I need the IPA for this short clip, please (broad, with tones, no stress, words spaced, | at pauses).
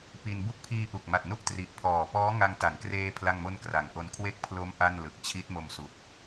pi˧n bu˦˥k̚pʰiː˧ʔu˨˩k̚ma˨˩t̚ nu˥˩ʔtri˨˩ʔpʰɔː˨˩ pɔː˦˥ŋa˧ŋta˩˦nkreː˧ pʰla˥˩ŋmo˥˩n kra˩˦ŋʔo˧n kʰwe˥˩k̚pʰlo˦˥m ʔa˥˩nlɯ˨˩k̚ t͡ɕʰi˦˥t̚mo˧msu˨˩k̚